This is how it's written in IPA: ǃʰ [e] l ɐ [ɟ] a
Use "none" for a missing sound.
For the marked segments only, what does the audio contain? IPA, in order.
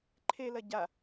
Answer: e, ɟ

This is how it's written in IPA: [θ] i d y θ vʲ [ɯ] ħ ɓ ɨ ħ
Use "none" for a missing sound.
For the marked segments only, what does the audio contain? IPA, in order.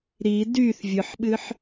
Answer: ɾ, ɯ

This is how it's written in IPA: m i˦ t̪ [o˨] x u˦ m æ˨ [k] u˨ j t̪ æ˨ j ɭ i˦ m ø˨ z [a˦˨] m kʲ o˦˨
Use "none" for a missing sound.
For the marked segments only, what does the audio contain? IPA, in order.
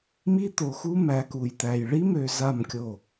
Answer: o˨, k, a˦˨

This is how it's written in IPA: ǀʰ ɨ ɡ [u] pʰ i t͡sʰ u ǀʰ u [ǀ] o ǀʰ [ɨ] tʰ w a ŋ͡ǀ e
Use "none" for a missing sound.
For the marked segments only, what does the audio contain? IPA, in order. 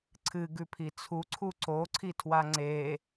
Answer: ʉ, ǀ, i

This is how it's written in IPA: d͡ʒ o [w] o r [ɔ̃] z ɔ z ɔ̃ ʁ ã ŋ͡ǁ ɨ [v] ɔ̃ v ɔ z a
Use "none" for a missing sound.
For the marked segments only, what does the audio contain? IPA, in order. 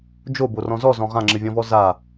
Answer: b, ɔ̃, vʲ

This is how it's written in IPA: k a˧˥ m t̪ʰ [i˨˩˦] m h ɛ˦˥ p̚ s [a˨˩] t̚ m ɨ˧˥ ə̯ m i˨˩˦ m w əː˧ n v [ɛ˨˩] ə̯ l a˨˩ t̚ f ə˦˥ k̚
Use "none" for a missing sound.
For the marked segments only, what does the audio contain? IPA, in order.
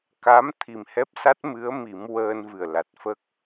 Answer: i˨˩, a˦˥, ɨ˨˩

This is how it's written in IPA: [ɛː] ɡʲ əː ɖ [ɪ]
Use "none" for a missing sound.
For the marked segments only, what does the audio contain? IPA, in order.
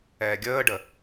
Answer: ɛː, ə

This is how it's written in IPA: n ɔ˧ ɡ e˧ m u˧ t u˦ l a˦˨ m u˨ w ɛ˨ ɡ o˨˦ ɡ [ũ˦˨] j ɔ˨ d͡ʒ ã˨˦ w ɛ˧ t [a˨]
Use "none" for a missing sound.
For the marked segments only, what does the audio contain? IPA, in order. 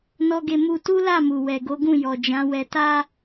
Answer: ũ˦˨, a˦

